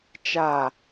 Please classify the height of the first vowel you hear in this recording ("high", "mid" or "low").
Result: low